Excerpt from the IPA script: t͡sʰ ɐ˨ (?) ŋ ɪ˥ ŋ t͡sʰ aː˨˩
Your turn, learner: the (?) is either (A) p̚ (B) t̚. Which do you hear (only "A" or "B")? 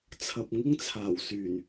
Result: A